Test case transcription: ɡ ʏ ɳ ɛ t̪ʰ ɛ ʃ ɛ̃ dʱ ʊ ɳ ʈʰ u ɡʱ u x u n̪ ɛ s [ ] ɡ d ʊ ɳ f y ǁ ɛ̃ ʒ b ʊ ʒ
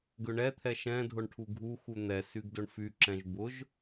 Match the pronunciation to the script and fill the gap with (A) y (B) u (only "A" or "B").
A